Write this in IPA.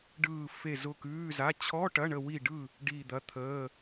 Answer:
ɖ ɯː˦˨ f e˦˨ z ʊ˦˨ k ʉː˧˥˧ z a˧˥˧ t͡ɕʰ ɔ˧˥˧ ʈ ɐ˧˥˧ ɳ ə˦˨ w i˦˨ ɖ ɯ˦˨ | ɖ iː˦˨ d̪ ɐ˧˥˧ t̪ʰ əː˧˥˧

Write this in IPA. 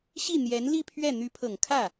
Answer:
ɕ i˥˩ n̪ j ɛ˧˥ n l i˥˧ pʰ ɥ ɛ˥˩ n̪ y˧˥ pʰ ɤ˨˩ ŋ kʰ ä˥˩

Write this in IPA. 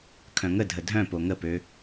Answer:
kʰ œ̃ ŋ ə dʱ ə dʱ œ̃ p o ŋ ə p ø

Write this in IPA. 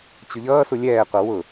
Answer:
t͡ɕ ʊ ʎ ʌː s u lʲ ɛː qʷ ʌ w ʊ

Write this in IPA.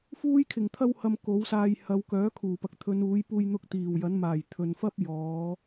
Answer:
f uː˥ j kʰ ɪ˨˩ ŋ t̪ʰ ɐ˥ w h ɐ˧ m k o˨˥ w s aː˧ j h ɐ˨˧ w k œː˨˥ kʰ uː˨˩ p ɐ˨ k̚ t̪ʰ ɵ˨˧ n uː˨˥ j p uː˧ j n̪ ʊ˧ k̚ t̪ iː˨˩ w j ɐ˨˥ n m aː˨˩ j t̪ʰ ɵ˨ n f ɐ˥ p̚ j ɔː˨˧

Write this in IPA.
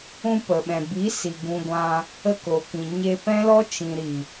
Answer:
ũ˧ p ə˨ ɓ ɛ̃˨ b i˨˦ s i˨ ɡ ũ˧ ɡʷ ã˧ | ə˧ k o˨ k ĩ˨ ɲ e˧ p ɛ̃˦ l ɔ˦ t͡ʃ ĩ˨ ɾ i˨

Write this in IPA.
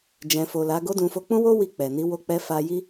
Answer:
d͡ʒ ɛ̃˨ f o˨ l a˨˦ ɡ o˦ d ũ˧ f o˧ k͡p ũ˦ w o˦ w i˧ k͡p ɛ˨ n i˨˦ w o˧ k͡p ɛ˧ f a˧ j i˦

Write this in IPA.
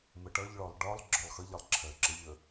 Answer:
m ə ʈ ʌ ʎ ɭ ɔ lˠ ɖ ɒ lˠ ɡ͡ǁ ɔ lˠ x ʌ ʎ ʌ lˠ ǁʰ ɜ ǁ ə ʎ ə

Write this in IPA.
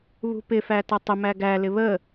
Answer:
β ṳ p ɪ f æ t ʌ tˤ ə m æ ɡ æ l ɪ β ə

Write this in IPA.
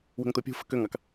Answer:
w ə̤ ŋ t̪ o pʲ ṳ f ə̤ k ø ŋ ɑ k

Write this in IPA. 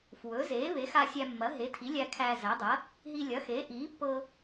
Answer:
f w ɵ˩˥ z eː˩˥ β e˩˥ x a˧ sʲ æ˧ mː ɐ˩˥ ɦ e˩˥ tʰ i˩˥ lʲ æ˧ kʰ æː˧ z æ˩˥ dˤ ɐ˩˥ | ɦ i˧ lʲ ɐ˩˥ x eː˩˥ ʔ iː˩˥ pː ɤ˧

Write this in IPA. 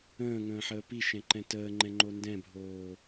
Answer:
ə̃ː ŋ ə̃ː ħ əː p i ʃ ɛ̃ ǃ ɛ̃ t əː ŋ͡ǃ ɛ̃ ŋ͡ǃ o n d ɛ̃ bʱ oː

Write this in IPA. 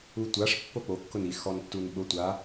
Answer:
u tʷ a ʂ pː o k͡p o kː ʊ n i x ɔ n tː u n ɓ ʊ tʷ a

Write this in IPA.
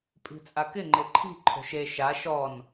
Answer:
pʼ i̤ t͡sʼ a k ɪ ŋ͡ǃ ɪ ǃʰ i̤ ǃʰ o̤ ʃ e ʃ a ʃ ɔ n

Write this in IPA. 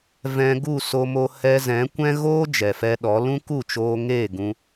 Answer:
v ɛ̃˧ ɡ u˦˨ s o˧ m o˧ h ɛ˧ z ɛ̃˨˦ kʷ ɛ̃˦ ɣ oː˦ d͡ʒ ɛ˨ f ɛ˧ ɗ ɔ˨˦ l ũ˦ k u˦˨ t͡ʃ oː˧ ŋ eː˦˨ ɡ ũ˧

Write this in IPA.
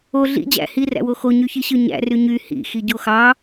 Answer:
o ɮ ḭ d͡ʑ æ̰ h i r æ̰ w o x o ɲ y ç i ɕ ɯ ɲ æ̰ r y ɲ y h ḭ x i ɟ o x ɑ

